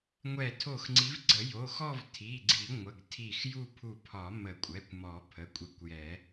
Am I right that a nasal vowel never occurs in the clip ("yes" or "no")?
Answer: yes